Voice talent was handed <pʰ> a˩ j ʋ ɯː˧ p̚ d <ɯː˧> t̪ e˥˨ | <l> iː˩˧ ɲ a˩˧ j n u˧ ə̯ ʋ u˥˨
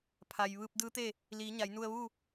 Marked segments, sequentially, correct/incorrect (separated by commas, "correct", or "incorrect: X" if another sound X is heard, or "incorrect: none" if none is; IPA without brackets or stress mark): correct, incorrect: ɯː˧˥, correct